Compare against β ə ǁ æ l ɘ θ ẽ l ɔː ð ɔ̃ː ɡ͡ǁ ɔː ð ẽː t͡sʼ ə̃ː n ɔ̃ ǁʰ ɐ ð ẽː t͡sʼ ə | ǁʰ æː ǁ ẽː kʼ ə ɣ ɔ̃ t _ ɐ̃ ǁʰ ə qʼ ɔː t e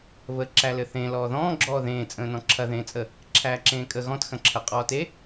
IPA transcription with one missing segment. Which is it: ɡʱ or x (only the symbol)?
x